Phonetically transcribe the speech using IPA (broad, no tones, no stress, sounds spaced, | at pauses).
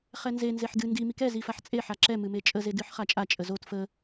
χ ɛ n z e n z e ħ d ɨ n d i m i k ɛ z i f a ħ t͡sʼ e ħ a ǁ ɛ m ɨ m e t͡ʃʼ ə z e d ɨ ħ χ a t͡ʃʼ a t͡ʃʼ ə z o t f ə